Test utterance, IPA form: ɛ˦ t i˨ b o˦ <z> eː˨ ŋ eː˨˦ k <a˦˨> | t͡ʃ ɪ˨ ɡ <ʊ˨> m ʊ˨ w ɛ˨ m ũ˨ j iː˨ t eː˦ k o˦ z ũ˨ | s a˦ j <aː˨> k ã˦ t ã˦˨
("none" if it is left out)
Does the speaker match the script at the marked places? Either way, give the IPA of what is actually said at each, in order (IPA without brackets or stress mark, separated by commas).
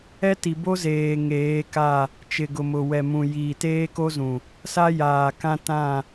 z, a˦˨, ʊ˨, aː˨